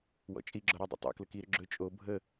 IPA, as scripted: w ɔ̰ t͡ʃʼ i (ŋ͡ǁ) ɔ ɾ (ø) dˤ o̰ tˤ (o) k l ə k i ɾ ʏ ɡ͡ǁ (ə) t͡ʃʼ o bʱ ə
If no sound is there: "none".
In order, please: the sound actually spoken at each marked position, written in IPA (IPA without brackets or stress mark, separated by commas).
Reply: ɡ͡ǁ, ɵ, o̰, ɵ